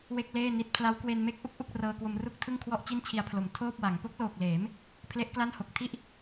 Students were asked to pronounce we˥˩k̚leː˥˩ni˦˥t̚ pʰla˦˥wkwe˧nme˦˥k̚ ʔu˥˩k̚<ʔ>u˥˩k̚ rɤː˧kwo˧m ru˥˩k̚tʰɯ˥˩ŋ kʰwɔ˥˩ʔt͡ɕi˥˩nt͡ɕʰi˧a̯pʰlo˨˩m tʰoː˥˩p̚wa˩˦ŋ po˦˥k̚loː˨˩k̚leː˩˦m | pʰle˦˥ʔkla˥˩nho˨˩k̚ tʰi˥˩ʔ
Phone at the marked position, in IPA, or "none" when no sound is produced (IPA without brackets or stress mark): ʔ